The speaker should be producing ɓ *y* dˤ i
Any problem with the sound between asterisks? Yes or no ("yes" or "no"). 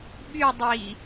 no